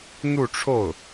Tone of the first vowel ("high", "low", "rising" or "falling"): falling